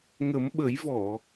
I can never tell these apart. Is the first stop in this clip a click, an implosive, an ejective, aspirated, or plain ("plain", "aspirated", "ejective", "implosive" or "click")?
implosive